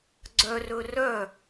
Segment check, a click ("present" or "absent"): present